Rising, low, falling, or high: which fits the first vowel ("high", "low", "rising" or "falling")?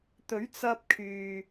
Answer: rising